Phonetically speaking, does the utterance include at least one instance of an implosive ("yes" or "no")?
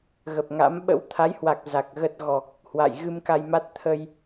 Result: yes